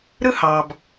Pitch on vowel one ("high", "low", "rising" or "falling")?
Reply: high